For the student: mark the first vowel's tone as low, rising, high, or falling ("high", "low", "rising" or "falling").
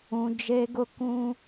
high